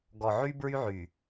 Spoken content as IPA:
ɡ ɔ˨ ʕ y˦ b ɹ y˦ ʕ y˨

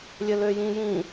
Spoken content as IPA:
lʲ ɘ l ø j ĩ j ĩ

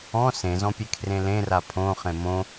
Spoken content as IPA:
ɔ̃ s ẽ z ɔ̃ pʲ e kʰ r ẽ l ẽ r a pʰ õ χ ẽ m õ

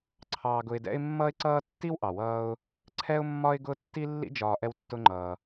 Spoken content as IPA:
ǀʰ ɑː˧ ɡ ʊ˧ ɪ̯ d ɛ̰˥ ɪ̯ mː ʌː˥ ɪ̯ ǀ ʌː˥ tː i˥ w ʔ ɑ˩ w ʌː˧ ʊ̯ | ǀʰ ɛ˥ ʊ̯ mː ɒ˥ ɪ̯ ɡ ʊ˥ tː i˥ lː ḭ˥ d͡ʒ ɒː˧ ʔ ɛ˧ w tː ʊ˧ ŋ͡ǃ ʌː˩

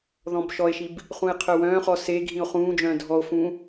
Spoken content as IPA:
ð ɔ̃ b ʃ ɔ e̯ ʃ i b | χ ũ e̯ qʰ œ w œ̃ː χ ɔ s e ɡʱ ĩ o̯ χ ũː d͡ʒ œ̃ː dʱ ɔ o̯ f ũ

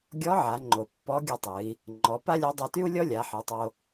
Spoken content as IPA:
ɡʲ ɔ˧˥ ʕ a˩˧ ŋ͡ǃ o˩ pː ɔ˧˥ ɡʲ ɨ˧ tˤ ɨ˩˧ i̯ | ŋ͡ǃ ɔ˩˧ p a˥ lʲ a˧˥ dˤ a˧ t y˥ u̯ lʲ ɔ˥ lʲ a˩˧ ħ ɨ˩˧ tˤ o˧

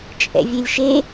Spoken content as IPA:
t͡ʃʼ ɛ̰ vʲ e lʲ ʃ e

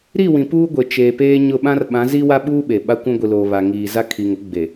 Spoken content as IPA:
ɾ i˦˨ w ĩ˨ p uː˦ ɡʷ e˨ t͡ʃ eː˨ p eː˦ ɲ ʊ˦˨ ɓ ã˦ r ɓ ã˨˦ z i˦ w a˦ ɓ uː˦ ɓ e˨ ɓ a˦ kʷ ũ˦ ɡʷ i˨ l oː˨ β a˨ ŋ iː˨ z a˦ kʰ i˨ ŋ ʊ˦ ɡ͡b e˨

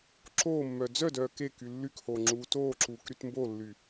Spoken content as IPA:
ǁ oː mː œː d͡z œ d œː k e k y lː y k h oː ŋ͡ǁ uː t oː ǁ uː k ɾ y t m b o lː y

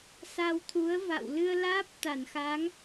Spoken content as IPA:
s a˧ w t̪ʰ u˨˦ ə̯ v a̰˧˨ w l ɨ˧ ə̯ l aː˦˥ p̚ t̪ a˧˩ n x aː˨˦ ŋ

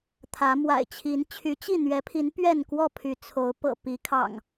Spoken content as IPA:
t̪ʰ ä˨˦ m w a̰˨˩ ɪ̯ t͡ɕʰ i˨˦ n t͡ɕʰ y˨˦ t͡ɕ i˥˨ n̪ ɥ ɛ˨˦ pʰ i˨˦ n p ɥ ɛ˥˨ n k w ɔ˥˨ pʰ y˨˦ t͡sʰ o˨˦ ʊ̯ p ɤ̰˨˩ p i˨˦ kʰ ɑ̰˨˩ ŋ

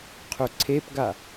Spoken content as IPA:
qʰ ʏ ǀʰ e p ɡ a

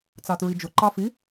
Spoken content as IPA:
t͡s ɑ t ɹ i d͡ʒ ʊ ǃ ɑ f i

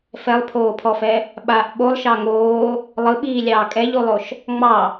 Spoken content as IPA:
f ɛ lˠ pʰ oː pʰ ɔ f ɛ | ɓ a ʔ ɓ o lˠ ʃ ɑ ŋ oː | lˠ ɯ ɓ iː lʲ ɑː kʼ ɛ ʎ u lˠ o ʃ | ŋ͡m ɑ

